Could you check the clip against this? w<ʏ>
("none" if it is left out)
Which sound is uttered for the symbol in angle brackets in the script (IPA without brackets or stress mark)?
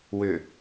ʏ